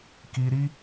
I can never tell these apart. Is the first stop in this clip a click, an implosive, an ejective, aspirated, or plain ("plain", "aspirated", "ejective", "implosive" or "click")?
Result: plain